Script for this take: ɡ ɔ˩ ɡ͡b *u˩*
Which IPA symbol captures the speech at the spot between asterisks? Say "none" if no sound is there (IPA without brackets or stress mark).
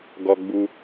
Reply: u˩